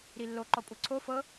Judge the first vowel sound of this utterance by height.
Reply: high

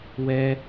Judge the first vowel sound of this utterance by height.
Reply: mid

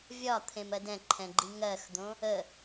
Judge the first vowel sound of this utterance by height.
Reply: low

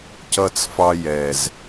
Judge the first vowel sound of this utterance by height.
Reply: mid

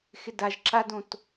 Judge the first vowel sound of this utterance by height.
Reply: high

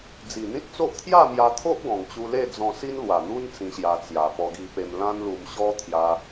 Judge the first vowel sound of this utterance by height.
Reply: high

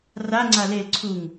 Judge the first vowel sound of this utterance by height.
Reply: low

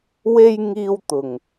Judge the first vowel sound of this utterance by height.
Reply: mid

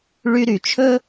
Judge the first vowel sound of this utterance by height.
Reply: high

